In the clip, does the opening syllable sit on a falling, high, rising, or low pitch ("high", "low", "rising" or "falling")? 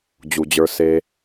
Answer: low